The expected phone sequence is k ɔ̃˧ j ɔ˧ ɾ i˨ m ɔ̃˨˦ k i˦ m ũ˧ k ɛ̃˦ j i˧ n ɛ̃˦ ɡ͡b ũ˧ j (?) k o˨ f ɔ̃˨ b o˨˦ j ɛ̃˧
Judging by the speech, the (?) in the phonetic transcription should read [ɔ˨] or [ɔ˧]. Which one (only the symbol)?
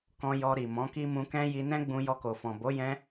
ɔ˧